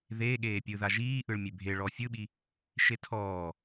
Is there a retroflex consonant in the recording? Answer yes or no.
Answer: yes